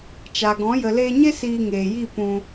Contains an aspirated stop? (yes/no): no